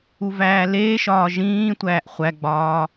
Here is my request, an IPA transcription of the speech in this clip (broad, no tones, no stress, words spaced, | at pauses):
uvæːleːʃɒː ʒĩːtʷæːʔ χʷæɡ͡bɒː